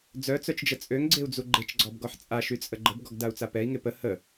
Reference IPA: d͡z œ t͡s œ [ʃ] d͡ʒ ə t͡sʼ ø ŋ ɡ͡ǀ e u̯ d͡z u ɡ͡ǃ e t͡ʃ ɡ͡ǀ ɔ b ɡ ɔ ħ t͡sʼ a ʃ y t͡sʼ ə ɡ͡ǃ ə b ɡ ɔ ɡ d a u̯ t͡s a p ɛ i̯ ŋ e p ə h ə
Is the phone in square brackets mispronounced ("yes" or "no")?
yes